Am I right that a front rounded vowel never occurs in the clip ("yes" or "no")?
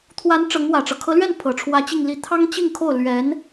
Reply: yes